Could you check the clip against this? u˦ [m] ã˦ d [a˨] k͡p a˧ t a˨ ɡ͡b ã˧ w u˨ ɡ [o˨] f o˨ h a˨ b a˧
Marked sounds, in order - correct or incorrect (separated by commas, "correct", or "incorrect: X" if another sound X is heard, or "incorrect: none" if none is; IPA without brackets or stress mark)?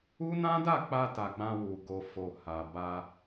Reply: incorrect: n, incorrect: a˦˨, correct